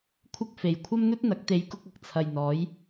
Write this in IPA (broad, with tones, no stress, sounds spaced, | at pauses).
kʷʰ ɪ˧ k̚ f e˨˩ j kʷʰ ɐ˥ m n̪ ɵ˥ t̚ n̪ ɐ˨˥ k̚ t̪ e˨˧ j k ʊ˧ k̚ ɐ˧ k̚ t͡sʰ ɐ˨ j n̪ ɔː˨˥ j